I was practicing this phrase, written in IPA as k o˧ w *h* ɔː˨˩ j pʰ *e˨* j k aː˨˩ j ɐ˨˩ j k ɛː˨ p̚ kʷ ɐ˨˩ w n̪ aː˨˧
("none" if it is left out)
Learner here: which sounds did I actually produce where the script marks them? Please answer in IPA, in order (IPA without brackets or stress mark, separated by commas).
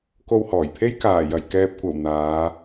h, e˥